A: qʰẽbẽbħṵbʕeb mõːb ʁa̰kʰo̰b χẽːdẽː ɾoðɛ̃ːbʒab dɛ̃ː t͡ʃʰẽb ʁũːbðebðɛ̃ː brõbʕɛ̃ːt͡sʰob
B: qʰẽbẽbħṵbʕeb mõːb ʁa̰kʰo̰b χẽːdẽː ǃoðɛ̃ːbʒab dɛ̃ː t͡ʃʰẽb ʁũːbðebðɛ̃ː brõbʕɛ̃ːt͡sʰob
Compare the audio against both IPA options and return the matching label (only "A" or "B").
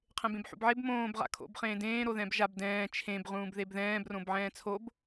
A